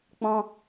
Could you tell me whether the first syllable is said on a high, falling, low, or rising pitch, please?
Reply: high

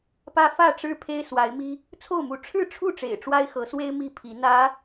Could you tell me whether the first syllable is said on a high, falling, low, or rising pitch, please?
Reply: high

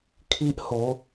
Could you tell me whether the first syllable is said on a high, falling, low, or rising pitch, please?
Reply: high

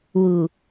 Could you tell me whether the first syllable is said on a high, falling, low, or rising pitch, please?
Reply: low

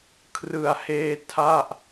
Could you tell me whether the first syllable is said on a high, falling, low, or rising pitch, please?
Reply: low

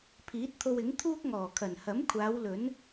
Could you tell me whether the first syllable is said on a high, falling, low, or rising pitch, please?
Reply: rising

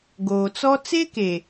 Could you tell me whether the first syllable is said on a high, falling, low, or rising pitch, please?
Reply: low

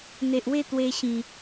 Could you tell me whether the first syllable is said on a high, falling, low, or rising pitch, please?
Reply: low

